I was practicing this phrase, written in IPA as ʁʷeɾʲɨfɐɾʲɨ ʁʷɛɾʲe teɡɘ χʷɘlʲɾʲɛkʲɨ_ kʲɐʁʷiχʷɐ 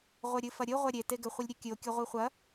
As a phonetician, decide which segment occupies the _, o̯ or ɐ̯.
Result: o̯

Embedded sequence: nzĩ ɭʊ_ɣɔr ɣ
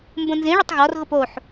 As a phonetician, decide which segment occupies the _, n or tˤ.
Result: tˤ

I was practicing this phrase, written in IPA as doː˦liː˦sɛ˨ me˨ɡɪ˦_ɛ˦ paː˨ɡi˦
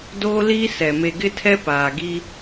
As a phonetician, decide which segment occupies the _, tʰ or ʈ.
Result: tʰ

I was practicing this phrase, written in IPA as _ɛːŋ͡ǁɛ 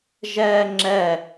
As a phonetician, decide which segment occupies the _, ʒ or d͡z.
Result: ʒ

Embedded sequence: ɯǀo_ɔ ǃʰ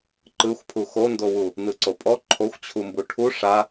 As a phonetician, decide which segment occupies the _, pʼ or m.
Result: pʼ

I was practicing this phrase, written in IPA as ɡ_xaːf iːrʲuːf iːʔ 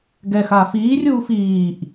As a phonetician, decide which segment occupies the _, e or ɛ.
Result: ɛ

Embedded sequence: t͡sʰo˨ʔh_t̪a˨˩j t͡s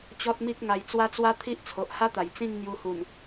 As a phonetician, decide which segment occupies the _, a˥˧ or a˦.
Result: a˦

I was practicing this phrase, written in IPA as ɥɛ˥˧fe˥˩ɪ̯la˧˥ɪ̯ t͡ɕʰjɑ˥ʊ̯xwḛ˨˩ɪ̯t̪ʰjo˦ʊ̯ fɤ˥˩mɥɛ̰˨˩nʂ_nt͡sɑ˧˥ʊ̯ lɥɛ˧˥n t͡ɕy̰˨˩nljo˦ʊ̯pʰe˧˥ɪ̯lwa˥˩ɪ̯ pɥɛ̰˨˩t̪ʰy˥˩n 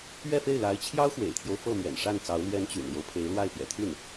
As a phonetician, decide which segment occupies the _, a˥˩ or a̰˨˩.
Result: a˥˩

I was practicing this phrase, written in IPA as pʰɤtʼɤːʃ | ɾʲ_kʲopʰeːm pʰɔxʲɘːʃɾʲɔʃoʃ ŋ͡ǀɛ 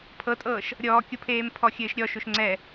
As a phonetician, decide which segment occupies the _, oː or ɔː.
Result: ɔː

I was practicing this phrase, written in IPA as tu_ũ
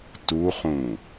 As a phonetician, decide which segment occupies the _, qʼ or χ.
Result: χ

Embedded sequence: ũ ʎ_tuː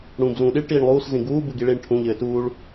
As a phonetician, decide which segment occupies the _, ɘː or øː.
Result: ɘː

